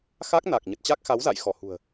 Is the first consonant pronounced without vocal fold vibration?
yes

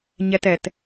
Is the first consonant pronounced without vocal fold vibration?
no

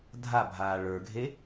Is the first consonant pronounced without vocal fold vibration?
no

